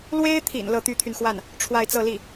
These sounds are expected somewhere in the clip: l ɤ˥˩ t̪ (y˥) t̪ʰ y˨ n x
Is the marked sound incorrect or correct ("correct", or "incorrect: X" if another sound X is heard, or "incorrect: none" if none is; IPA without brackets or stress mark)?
correct